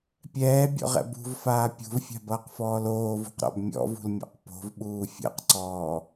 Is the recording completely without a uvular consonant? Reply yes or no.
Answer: no